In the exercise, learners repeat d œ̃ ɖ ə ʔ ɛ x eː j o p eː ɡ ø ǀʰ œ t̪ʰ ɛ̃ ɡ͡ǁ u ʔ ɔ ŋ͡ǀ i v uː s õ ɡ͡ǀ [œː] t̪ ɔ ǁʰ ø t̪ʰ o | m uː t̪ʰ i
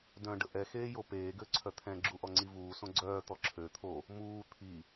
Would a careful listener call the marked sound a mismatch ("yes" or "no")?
no